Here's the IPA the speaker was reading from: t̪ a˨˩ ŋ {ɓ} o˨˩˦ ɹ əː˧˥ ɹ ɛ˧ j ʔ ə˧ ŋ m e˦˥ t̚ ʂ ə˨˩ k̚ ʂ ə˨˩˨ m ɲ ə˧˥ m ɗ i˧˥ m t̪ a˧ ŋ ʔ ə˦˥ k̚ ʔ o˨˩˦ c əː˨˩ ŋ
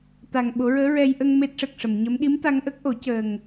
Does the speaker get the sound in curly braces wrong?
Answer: no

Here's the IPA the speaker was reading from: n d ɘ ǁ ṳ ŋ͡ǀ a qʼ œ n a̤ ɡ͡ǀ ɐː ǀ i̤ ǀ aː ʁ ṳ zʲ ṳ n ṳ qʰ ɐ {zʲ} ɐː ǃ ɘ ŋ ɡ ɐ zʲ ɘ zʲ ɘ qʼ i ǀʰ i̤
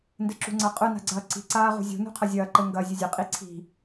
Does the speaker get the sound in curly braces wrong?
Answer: no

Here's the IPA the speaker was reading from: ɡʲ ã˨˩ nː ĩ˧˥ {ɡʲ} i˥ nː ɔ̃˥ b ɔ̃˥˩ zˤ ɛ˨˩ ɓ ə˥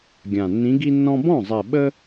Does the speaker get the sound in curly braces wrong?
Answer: yes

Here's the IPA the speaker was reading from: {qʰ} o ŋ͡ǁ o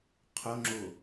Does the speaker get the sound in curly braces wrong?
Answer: no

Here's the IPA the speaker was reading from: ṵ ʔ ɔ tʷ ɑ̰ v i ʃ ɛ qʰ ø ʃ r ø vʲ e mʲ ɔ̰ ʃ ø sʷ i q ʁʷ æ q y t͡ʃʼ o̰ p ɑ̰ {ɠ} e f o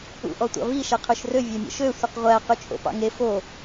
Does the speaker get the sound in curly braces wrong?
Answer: yes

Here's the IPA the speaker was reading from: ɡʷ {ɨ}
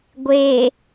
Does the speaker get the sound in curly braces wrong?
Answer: yes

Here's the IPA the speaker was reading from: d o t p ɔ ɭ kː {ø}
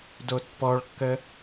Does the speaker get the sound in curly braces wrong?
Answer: yes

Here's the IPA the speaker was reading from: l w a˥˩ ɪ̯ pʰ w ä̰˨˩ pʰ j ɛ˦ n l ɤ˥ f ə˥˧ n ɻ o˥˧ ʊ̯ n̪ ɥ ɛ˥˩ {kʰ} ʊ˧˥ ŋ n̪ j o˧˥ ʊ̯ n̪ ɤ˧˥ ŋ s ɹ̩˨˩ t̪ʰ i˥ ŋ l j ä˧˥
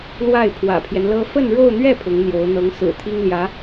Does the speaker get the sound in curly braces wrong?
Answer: yes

